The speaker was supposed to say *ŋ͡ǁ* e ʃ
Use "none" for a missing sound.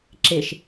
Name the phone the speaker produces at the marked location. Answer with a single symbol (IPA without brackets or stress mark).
ǁ